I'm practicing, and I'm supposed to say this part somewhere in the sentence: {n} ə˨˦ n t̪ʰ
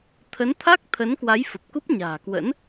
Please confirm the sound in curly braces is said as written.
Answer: no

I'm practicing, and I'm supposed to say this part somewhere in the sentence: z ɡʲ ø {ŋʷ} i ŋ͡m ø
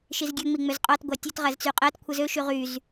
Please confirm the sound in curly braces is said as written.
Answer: no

